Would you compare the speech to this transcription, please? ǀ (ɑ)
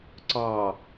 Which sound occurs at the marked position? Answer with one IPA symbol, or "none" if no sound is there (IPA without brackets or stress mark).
ɑ